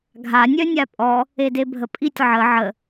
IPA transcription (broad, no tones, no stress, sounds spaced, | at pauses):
ɡʱ a nʲ œ nʲ a pʼ ɔ | e d e bʱ ə pʼ i tʲ ʕ ə ʕ ə